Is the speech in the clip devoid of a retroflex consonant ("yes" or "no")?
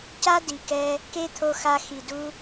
yes